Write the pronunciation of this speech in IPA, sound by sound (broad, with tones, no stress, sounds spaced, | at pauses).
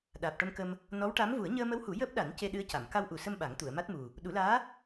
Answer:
ɗ aː˨˩ p̚ ʈ ə˧ m k ə˧ m | n ɔ˧˥ w ʈ a˧˥ m v u˨˩˦ ə̯ ɲ əː˧ m ə˧˥ w h u˨˩˦ j əː˦˥ p̚ ɗ a˨˩˦ n c e˧ ɗ ɨ˧˥ ə̯ c a˨˩˨ m k a˧ w ʔ u˨˩ s ə˧ m ɓ a˨˩˦ ŋ t̪ u˨˩˨ ə̯ m a˦˥ t̚ m u˨˩ | ɗ u˨˩˦ l aː˧˥